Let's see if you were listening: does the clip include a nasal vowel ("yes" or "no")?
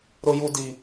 no